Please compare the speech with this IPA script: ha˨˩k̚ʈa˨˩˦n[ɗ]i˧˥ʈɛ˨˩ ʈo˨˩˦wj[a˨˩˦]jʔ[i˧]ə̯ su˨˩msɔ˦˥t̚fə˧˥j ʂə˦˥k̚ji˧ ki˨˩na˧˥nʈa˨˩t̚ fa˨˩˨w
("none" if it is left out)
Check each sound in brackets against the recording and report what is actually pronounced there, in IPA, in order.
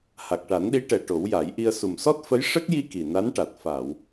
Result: ɗ, a˨˩˦, i˧

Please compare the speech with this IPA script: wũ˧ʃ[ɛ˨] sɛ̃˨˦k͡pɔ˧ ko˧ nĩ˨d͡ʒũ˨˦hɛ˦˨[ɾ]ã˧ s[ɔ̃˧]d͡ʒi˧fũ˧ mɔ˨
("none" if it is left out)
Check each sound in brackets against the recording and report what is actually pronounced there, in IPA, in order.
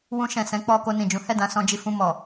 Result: ɛ̃˨, d, ɔ̃˧

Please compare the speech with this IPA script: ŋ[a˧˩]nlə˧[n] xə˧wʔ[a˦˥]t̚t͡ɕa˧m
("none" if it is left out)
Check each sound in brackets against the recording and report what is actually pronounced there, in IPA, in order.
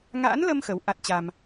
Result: a̰˧˥, m, a˦˥

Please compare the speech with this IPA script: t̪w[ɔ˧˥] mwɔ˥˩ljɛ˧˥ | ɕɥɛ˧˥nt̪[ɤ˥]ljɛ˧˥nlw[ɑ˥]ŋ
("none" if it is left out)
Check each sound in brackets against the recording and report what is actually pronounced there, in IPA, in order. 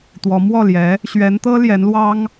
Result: ɔ˧˥, ɤ˥, ɑ˥

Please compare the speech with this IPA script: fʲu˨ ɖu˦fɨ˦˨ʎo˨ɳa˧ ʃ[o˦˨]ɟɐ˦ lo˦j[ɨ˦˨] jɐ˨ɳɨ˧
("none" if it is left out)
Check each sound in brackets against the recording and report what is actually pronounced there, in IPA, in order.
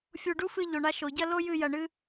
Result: o˨, ɨ˦˨

